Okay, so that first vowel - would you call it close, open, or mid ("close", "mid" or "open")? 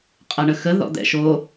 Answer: open